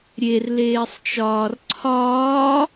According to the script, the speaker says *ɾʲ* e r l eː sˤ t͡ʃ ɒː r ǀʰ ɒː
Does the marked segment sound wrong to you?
no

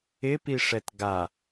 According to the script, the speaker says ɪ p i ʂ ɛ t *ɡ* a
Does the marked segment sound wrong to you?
no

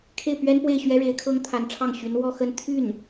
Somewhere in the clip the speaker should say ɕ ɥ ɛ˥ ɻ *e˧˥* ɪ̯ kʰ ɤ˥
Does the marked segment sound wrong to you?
no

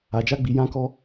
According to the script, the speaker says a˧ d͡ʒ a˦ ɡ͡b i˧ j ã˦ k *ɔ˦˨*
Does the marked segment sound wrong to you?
yes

